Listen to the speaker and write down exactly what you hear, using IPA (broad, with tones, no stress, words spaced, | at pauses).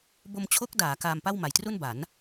bo˧mt͡ɕʰo˦˥k̚daː˩˦ kaː˧mpa˥˩wma˨˩jtru˥˩n ba˩˦n